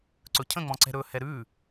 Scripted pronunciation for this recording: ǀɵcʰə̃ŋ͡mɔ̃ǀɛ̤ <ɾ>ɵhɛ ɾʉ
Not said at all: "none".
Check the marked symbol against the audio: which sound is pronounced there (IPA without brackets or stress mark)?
ɾ